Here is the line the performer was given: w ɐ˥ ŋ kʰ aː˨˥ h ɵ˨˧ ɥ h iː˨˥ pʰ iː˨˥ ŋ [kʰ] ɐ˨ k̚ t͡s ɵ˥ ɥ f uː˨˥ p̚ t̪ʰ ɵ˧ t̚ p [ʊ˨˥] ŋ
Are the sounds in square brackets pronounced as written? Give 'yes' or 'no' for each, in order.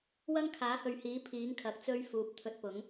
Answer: yes, yes

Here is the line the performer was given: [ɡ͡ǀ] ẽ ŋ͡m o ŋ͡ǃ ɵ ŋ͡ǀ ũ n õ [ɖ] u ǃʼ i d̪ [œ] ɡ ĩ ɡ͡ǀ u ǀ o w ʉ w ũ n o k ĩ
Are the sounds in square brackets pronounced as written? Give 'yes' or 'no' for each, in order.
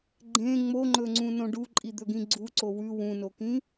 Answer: no, yes, no

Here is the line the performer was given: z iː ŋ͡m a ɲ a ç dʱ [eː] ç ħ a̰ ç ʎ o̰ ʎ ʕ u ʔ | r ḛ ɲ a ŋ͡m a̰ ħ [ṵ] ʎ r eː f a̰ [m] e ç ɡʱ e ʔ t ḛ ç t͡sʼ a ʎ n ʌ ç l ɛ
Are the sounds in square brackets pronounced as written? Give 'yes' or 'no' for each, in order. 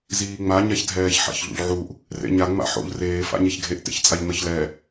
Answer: no, no, no

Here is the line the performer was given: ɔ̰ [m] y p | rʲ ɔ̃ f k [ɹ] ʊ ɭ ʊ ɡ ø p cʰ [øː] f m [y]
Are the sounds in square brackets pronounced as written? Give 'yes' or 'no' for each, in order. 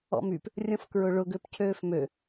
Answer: yes, yes, yes, no

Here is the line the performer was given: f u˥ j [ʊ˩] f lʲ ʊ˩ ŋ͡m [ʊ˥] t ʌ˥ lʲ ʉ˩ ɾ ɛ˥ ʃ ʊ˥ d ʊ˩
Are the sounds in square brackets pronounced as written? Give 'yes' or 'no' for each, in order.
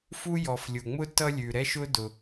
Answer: no, yes

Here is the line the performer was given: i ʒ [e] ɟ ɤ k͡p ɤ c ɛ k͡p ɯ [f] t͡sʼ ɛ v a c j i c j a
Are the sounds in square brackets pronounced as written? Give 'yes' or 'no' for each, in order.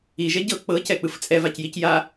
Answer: no, yes

